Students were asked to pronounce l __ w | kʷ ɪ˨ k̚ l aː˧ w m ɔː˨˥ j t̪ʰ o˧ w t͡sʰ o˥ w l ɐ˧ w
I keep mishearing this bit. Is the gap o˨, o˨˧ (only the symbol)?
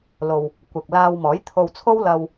o˨